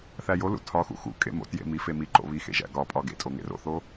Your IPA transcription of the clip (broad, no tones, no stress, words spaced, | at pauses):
θæjolṵ tʰɒxṵ xṵ kʼḛmo̰tjḛ mi femiǃo̰ βixḛ ʒæ̰ɡɒpʼɒ ɡḛtʼo ŋḛro̰θo